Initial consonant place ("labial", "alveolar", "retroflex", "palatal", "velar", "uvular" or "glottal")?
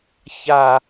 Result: palatal